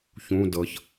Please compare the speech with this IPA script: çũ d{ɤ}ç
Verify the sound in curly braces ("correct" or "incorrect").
correct